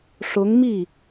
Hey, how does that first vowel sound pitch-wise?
rising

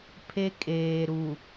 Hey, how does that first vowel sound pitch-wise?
high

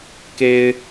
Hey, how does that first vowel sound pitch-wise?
high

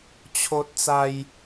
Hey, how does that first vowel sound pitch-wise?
high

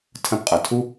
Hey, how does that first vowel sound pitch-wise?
high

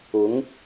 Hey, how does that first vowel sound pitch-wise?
rising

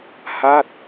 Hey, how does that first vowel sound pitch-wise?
falling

